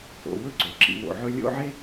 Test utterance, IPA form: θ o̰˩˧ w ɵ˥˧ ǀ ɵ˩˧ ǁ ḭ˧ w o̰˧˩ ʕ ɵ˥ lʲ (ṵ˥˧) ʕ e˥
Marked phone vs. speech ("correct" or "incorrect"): incorrect